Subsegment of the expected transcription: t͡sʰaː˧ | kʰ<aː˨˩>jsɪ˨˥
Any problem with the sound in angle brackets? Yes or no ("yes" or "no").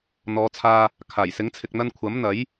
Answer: no